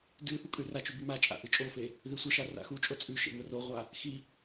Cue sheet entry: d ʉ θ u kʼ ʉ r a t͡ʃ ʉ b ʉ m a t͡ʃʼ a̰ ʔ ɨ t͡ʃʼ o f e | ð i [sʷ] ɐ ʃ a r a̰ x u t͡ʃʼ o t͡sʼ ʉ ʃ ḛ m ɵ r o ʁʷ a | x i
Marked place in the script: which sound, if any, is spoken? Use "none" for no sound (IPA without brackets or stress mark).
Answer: sʷ